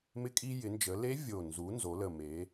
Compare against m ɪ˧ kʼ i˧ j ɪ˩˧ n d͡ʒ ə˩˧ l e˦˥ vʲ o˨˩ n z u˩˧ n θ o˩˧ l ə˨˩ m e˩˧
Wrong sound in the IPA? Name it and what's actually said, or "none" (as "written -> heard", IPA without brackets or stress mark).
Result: θ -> z